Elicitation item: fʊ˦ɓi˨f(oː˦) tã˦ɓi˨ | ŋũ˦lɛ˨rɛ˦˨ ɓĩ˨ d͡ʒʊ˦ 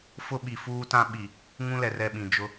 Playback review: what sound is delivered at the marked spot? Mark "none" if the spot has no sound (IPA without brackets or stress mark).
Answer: uː˦